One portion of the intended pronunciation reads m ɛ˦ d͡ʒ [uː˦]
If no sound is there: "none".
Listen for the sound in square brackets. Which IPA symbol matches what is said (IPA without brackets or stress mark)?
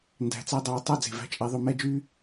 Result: yː˦